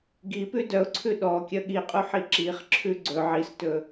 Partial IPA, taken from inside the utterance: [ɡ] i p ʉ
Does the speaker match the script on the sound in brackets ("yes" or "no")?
yes